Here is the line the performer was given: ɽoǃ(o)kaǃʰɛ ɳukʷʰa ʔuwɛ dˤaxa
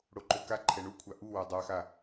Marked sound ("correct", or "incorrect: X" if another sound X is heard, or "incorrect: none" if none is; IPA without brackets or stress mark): correct